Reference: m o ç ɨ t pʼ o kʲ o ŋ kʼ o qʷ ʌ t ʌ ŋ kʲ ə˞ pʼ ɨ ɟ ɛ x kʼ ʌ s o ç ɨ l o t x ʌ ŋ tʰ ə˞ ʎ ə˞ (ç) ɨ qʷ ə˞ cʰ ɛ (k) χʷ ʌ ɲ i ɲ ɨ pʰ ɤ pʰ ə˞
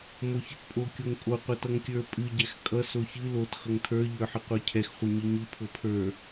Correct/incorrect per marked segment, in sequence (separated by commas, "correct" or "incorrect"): incorrect, incorrect